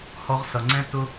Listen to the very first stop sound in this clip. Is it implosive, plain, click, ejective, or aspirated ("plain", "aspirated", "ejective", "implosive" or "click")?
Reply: click